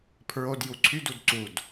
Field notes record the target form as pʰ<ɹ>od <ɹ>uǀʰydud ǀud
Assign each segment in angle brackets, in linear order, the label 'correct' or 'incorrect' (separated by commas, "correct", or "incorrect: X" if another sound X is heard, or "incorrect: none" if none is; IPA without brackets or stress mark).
correct, incorrect: j